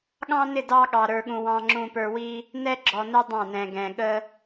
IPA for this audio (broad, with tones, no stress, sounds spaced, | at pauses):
ɠ ɑ̃˦ n ɪ˦˨ d ɑ˦ ɠ ɑ˨ ɾ ə˞˨ ɠ ũ˨ w ɑ̃˨ ŋ͡ǁ ũ˨ p ə˞˨ w i˦ | n ɛ˦ ɡ͡ǁ ɔ˨ n ɛ˦ dˤ ɑ̃˦˨ n ɛ̃˨ ɡ ɛ̃˨ ɠ ə˦